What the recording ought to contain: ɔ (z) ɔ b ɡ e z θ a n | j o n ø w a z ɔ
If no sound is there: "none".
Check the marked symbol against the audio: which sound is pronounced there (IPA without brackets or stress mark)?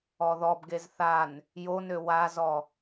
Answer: ð